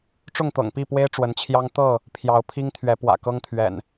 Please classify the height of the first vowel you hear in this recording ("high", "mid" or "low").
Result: high